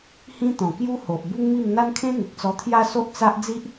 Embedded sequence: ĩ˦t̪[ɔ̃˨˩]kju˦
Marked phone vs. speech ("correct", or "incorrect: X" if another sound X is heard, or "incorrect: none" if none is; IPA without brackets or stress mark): correct